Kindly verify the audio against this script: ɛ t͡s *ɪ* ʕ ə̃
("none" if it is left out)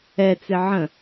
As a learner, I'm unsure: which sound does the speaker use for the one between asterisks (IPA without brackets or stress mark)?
ɪ